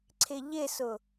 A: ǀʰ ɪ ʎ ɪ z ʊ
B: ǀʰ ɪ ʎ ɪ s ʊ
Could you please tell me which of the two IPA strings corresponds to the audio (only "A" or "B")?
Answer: B